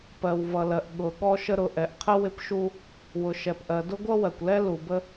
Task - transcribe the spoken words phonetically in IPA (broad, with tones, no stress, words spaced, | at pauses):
pɜ˩wvʌ˩ lɜ˩ʔ ɠʊ˩ ɠɔ˥ʃə˥ ɾʊ˩ʔɛ˩ʔqʰə˥ wɪ˥pʃu˥ | wʊ˩ʃɛ˩pʔɜ˩dʊ˥ ɡʷʌ˥wɜ˩kʷlɛ˥ lu˩bə˥